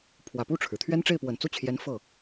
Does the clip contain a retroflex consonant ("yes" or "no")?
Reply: yes